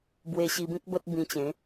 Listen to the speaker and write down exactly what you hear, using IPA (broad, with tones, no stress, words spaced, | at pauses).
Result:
bwe˧ɕi˧bĩ˦k̚ bə˦t̚bĩ˧t͡ɕẽ˨˦